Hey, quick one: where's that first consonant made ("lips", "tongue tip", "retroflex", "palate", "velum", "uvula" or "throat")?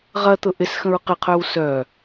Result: uvula